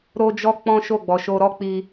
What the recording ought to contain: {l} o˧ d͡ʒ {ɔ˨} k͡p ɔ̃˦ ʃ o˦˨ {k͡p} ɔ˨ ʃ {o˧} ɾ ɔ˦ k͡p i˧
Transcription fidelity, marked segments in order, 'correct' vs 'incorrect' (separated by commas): incorrect, incorrect, incorrect, correct